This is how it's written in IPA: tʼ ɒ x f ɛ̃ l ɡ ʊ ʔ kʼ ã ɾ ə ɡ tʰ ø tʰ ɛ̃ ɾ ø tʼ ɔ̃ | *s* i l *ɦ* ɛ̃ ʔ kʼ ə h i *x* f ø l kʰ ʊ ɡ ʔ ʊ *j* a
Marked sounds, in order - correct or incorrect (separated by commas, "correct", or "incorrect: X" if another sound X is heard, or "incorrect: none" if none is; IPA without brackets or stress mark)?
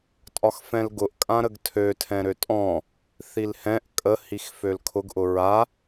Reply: incorrect: θ, incorrect: h, correct, incorrect: ɹ